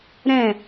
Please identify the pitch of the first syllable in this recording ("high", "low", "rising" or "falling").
falling